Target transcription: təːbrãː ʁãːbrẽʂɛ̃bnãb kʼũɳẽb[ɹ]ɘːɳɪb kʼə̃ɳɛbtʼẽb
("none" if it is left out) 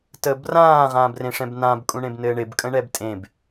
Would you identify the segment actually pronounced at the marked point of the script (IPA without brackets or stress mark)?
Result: n